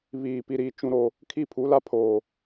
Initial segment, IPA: β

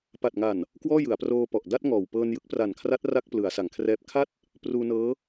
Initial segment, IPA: p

